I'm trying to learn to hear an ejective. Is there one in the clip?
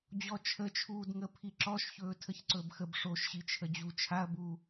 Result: no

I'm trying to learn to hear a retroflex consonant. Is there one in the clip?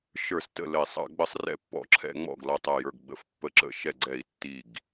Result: no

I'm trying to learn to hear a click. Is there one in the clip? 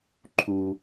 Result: yes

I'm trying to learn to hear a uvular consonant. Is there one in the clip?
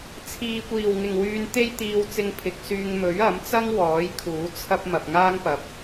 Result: no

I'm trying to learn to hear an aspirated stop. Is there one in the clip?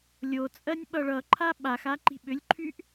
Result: yes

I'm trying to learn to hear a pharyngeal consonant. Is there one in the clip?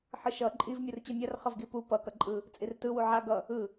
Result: yes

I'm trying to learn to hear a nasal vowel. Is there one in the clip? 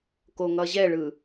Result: no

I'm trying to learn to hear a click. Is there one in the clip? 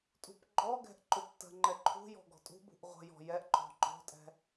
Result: yes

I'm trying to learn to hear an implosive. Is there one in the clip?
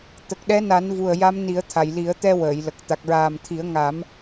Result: yes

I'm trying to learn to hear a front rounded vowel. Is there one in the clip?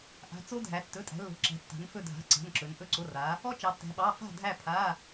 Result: no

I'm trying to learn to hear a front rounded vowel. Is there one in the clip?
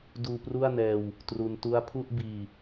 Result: no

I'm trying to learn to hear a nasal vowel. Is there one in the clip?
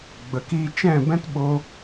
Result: yes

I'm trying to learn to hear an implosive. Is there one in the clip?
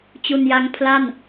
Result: no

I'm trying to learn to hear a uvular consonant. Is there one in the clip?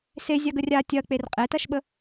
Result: yes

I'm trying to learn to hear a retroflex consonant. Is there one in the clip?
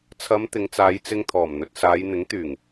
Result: no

